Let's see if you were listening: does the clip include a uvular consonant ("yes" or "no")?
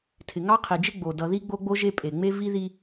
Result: yes